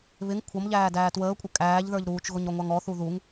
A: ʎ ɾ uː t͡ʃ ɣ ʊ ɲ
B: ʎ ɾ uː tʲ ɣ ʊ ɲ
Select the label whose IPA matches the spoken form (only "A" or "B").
A